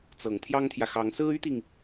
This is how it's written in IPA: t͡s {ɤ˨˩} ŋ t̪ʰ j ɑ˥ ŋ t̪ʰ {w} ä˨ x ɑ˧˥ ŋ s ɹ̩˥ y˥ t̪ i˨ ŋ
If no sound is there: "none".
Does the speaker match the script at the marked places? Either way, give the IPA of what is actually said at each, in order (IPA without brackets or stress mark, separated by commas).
ɤ˨˩, j